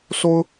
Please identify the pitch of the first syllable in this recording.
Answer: high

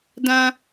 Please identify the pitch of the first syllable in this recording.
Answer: high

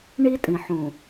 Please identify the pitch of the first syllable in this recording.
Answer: high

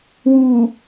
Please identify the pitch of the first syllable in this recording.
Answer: low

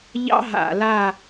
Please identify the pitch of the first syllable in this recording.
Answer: high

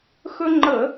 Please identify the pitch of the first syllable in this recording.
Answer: high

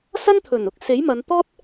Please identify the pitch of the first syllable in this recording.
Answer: high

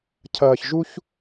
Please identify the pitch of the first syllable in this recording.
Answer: low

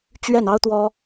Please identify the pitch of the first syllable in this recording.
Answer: falling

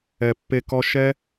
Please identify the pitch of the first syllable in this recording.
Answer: low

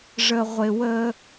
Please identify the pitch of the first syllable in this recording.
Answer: low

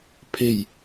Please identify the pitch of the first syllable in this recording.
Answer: low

